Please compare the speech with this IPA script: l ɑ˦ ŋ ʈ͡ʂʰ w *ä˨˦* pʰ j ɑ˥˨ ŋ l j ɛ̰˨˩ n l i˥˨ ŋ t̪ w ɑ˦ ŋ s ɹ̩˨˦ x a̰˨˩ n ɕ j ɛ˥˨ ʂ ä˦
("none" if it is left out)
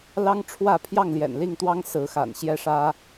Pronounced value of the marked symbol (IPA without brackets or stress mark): ä˥˨